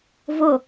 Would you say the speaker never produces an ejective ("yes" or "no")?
yes